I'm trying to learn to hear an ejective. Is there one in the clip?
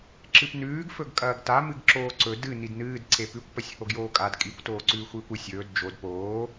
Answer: yes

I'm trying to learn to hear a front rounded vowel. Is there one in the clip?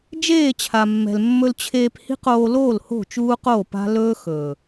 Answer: no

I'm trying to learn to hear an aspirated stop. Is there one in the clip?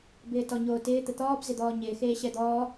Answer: no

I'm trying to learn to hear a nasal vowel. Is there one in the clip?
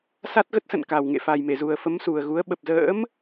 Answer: no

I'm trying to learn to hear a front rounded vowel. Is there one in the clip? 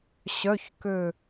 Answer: yes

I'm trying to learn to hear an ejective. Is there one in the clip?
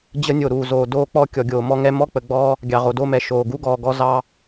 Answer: no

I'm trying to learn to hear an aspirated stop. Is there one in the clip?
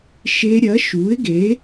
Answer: no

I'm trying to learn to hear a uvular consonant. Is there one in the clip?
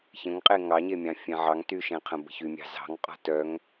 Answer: yes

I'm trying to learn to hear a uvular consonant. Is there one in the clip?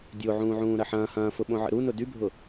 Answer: no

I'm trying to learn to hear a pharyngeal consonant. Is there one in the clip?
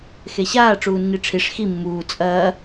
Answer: no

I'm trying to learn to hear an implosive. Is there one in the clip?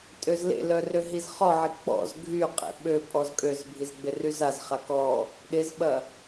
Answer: yes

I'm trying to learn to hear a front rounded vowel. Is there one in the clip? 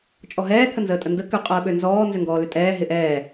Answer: yes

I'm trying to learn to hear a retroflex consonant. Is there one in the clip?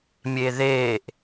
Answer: no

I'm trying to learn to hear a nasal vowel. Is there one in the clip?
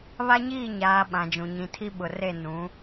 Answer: yes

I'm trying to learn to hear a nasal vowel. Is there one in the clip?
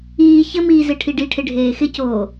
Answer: no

